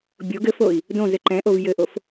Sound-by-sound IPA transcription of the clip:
bʲ o ɡ ɘ f o i̯ | d õ z ɘ ǃ ɛ̃ ʔ o v j ɘ ʔ o f

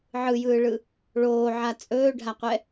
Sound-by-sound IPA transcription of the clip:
ʕ ɯ j ɯː ɭ ɯ | ɭ oː ʕ a t͡sʼ ɵː ɖʱ a qʷ ɛ

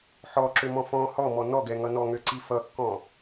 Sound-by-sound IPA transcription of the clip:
ħ ɔ ǁ ø m ɔ̃ f ɔ̃ h ɔ m ɔ n ɔ ɡ ɛ ŋ ʌ n ɔ ŋ ø ǀ i f ʌ kː ɔ̃

